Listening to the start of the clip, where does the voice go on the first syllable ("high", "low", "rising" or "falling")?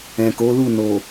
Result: low